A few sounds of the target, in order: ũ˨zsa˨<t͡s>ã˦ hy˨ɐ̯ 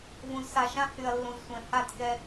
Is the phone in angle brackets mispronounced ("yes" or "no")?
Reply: yes